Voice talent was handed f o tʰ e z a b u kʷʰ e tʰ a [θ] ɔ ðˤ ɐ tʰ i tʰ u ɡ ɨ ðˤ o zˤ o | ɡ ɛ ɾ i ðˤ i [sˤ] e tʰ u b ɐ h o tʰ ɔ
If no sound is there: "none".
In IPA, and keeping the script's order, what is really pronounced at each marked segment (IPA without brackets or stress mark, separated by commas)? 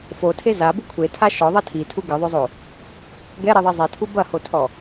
ʃ, zˤ